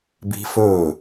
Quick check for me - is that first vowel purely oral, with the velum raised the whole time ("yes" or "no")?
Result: yes